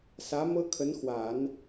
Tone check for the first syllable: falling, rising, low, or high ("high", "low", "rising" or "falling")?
rising